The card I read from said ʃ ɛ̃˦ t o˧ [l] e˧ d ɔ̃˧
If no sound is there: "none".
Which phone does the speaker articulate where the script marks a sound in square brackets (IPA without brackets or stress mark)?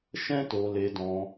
l